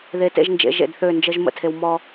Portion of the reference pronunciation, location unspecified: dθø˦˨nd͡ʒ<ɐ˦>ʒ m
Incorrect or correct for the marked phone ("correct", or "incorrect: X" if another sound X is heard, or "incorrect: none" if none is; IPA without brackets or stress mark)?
incorrect: ə˦